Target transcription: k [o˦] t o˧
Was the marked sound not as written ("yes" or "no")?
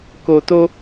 yes